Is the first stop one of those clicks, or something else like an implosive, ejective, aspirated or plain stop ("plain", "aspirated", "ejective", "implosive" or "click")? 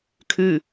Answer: aspirated